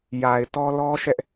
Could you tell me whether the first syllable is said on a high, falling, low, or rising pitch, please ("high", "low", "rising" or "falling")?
low